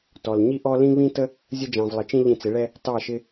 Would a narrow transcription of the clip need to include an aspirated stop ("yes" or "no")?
no